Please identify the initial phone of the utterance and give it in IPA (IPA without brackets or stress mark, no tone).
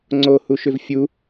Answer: ŋ͡ǀ